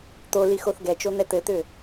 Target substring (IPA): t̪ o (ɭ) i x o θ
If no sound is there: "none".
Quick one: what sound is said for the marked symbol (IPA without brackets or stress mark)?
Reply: l